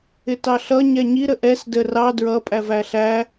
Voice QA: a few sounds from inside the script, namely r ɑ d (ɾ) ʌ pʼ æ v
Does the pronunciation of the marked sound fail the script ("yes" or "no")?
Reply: yes